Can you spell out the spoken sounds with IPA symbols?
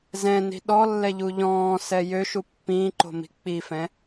z ɛ̃ n i̤ ɗ ɔ lː ɛ ʎ u ʎ ɔ̃ː s ɛ j ø ʃ u pː ĩː ǃ o̤ m i̤ k͡p i f ɛ̃

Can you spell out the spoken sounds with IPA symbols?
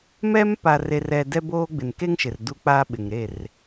m ɛ˦ m p a˨ r e˨ r ɛ˨ d ɛ˦ b oː˦ ɡ͡b ɪ˨ n k e˦ ŋ ʃ ɪ˨ r d u˦ k͡p aː˦ ɓ ɪ˨ ŋ ɾ e˦˨ r

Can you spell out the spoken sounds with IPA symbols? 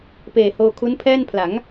p eː˨˩ h oː˧ kʰ u˦˥ n pʰ ɛː˥˩ n pʰ l a˩˦ ŋ

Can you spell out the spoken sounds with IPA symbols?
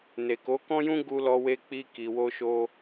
n e˨ k o˨˦ k ɔ̃˦ j ũ˦ ɡ u˧ l ɔ˧ w e˧ k͡p i˧ k i˨ w o˧ ʃ o˧

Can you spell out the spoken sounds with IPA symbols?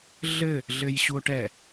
ɮ ɘ | ɮ ɘ j ɕ u o̯ ʈ ɛ

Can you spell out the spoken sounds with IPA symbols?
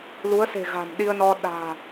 l u˨˦ ə̯ s e̤˨˩ ɣ a̤˨˩ m ɗ i˧ ə̯ n ɔ˧ ɗ a̤ː˨˩

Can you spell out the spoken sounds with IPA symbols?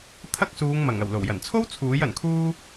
t̪ʰ ɐ˥ k̚ s uː˨˧ ŋ m ɐ˨˩ ŋ ɐ˨˩ w l o˨˩ w j ɐ˨˩ n t͡sʰ o˥ w t͡sʰ uː˨˥ j ɐ˨˩ n kʰ uː˧

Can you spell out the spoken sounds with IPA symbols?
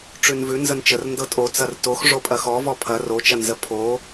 ʈ͡ʂ ʉ n v ʉ n z ə n t͡ʃ ə r n d ɤ tʼ o t͡s ɐ r t o x ʐ o pʼ ɐ x ɔ v ɔ pʰ ɐ r o t͡ʃ ɐ n z ə pʰ o

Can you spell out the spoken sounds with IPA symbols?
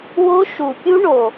w o˦˥ ʃ u˨˩ pʲ u˦˥ ɳ o˨˩

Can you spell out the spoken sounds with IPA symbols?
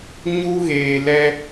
ɲ u˦ ɣ eː˨ l ɛ˦

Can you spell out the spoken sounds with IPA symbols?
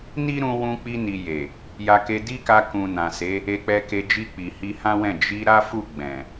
n i˦ ɾ ũ˧ w ũ˧ k͡p i˧ n i˨ j e˨ | j a˧ k e˧ d i˦ k a˧ k ũ˨ n ã˨ s e˨˦ | e˧ k͡p ɛ˧ k e˧ d͡ʒ i˧ k͡p i˨ h i˧ h ã˦ w ɛ̃˦˨ d͡ʒ i˧ ɾ a˦ f u˦˨ ɡ͡b ɛ̃˨

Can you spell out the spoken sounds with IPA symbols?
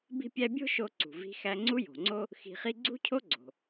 b i̤˥ pʲ æ˥ bʲ o̤˥ ʃ o˧ ǀ ṳ˩ v i̤˧ x æ˧ ŋ͡ǀ u˥ j o̤˩ ŋ͡ǀ o˥ | x i̤˧ χ i˥ ɡ͡ǀ ṳ˥ cʰ o˥ ɡ͡ǀ o̤˩

